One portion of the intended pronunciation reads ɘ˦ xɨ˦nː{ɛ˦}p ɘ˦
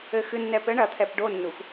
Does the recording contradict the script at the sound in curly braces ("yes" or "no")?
no